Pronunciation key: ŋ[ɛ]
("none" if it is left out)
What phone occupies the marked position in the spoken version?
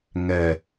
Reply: ɛ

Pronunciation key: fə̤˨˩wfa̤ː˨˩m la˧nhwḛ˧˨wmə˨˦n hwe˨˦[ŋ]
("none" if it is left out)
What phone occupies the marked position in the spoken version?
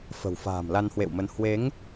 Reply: ŋ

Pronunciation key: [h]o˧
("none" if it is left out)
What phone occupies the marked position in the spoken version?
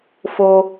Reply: f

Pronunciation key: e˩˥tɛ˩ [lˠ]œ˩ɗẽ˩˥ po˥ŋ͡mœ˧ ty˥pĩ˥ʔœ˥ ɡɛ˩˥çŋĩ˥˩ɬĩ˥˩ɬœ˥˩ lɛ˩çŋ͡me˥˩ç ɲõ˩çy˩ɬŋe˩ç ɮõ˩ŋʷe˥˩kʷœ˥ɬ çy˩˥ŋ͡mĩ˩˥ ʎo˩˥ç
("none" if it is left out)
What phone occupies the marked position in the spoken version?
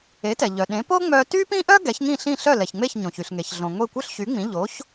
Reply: ʎ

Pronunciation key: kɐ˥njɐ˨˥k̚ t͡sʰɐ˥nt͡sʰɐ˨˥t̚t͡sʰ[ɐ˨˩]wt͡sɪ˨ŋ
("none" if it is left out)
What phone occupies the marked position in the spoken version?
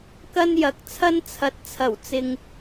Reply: ɐ˨˩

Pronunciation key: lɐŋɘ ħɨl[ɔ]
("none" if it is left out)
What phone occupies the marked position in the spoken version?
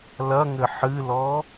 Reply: ɔ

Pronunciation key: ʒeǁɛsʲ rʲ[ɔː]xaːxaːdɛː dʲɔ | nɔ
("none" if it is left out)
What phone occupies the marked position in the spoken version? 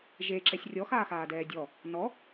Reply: ɔ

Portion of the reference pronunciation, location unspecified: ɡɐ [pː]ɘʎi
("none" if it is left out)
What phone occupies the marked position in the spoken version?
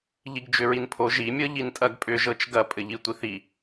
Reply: pʼ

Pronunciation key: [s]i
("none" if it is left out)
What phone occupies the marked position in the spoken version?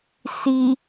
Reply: s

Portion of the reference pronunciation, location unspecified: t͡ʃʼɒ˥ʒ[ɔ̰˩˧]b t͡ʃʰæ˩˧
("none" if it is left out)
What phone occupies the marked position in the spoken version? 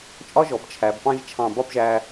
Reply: ɔ˩˧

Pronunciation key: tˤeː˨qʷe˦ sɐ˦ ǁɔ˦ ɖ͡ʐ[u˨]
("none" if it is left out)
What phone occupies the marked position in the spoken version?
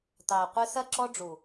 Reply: u˨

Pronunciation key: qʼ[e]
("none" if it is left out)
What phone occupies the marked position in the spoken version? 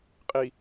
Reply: i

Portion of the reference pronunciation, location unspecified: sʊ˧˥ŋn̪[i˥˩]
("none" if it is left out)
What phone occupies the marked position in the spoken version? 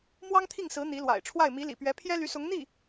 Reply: i˥˩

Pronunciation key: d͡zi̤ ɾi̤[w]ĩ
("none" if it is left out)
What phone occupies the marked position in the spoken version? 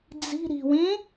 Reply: w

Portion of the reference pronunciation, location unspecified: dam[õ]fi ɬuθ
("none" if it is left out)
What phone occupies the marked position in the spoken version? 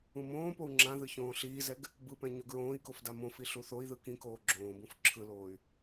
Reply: õ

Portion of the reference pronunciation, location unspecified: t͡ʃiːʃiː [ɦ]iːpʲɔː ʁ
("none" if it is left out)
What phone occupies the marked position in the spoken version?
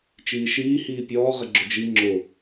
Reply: h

